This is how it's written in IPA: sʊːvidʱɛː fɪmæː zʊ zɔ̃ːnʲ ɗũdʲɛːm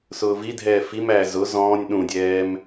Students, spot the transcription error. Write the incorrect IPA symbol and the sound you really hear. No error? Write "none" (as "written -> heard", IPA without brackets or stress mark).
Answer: ɪ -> i